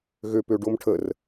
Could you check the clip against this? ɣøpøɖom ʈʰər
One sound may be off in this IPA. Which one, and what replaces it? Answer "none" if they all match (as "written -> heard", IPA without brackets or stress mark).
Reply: none